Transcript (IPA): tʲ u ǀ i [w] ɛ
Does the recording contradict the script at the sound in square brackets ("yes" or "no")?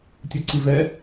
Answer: yes